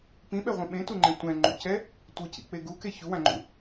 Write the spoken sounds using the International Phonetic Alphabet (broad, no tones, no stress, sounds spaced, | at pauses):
p ĩ ɓ ɛ ʁʷ ẽ ɓ ẽ t u ŋ͡ǃ ẽ tʷ ɛ̃ ŋ͡ǃ ṵ c ɛ | tʷ ɯ c ḭ k͡p e ɡ u k e ç u w ã ŋ͡ǃ ṵ